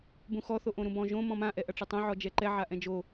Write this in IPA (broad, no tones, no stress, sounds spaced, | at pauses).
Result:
b ũ x ɔ θ o ʔ õ ɾ ũ b ɔ̃ ʒ õ m ɔ̃ m ã ʔ ɛ ʔ ɐ ʈ͡ʂ ɐ tˤ õ ʕ ɔ d͡ʒ ɛ ǃ ɛ ʕ a ʔ ɛ̃ d͡ʒ o